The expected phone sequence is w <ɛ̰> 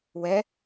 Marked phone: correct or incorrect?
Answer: incorrect: ɛ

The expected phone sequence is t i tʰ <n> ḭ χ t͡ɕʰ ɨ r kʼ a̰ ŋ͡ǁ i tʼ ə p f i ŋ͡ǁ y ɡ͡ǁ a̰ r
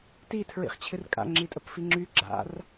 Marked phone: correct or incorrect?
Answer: incorrect: ɹ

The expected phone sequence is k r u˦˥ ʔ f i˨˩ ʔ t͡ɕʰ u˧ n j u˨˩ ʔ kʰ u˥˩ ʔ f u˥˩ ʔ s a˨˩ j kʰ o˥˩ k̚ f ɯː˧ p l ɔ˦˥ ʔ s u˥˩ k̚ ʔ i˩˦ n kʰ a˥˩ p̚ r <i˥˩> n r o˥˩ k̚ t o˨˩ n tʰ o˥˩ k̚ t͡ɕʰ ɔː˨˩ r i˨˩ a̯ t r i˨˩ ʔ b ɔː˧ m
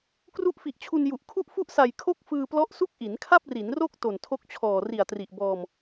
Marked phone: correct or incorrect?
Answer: incorrect: i˩˦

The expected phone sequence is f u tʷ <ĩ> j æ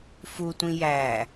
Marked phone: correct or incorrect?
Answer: correct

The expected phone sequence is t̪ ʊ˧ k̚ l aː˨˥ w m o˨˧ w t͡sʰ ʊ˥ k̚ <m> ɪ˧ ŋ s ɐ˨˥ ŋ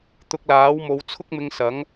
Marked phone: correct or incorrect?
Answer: correct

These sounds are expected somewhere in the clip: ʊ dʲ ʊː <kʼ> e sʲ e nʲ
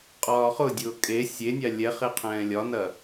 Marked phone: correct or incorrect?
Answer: correct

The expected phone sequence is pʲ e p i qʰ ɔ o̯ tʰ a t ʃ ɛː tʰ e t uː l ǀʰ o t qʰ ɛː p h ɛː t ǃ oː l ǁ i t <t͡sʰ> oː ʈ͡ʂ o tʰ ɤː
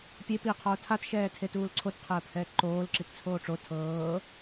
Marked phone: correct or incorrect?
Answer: correct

